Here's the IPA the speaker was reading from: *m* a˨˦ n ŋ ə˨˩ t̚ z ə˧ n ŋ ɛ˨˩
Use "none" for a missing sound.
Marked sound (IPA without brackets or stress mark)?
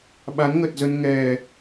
ɓ